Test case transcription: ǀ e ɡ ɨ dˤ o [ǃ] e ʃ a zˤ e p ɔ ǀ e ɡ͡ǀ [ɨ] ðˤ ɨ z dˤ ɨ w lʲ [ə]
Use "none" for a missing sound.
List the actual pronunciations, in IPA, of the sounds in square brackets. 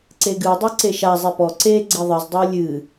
ǀ, i, ɨ

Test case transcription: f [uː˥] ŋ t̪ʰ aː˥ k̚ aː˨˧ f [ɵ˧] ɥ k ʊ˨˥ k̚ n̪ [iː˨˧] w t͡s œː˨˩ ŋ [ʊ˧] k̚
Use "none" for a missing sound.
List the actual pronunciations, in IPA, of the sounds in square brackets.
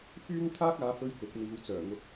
yː˥, ɵ˧, iː˨˧, ʊ˧

